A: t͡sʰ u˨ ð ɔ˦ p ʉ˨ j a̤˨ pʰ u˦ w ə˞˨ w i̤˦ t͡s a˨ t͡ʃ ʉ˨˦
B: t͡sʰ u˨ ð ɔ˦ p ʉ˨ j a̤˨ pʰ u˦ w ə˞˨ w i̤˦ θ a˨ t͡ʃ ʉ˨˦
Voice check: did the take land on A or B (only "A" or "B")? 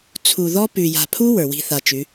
B